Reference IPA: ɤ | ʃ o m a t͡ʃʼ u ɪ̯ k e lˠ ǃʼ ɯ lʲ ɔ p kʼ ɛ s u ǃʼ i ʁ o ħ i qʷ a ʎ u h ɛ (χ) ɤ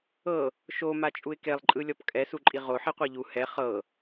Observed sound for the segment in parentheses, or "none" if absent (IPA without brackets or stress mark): χ